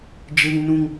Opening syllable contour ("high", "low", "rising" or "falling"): high